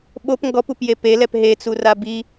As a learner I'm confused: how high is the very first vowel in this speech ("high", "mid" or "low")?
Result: mid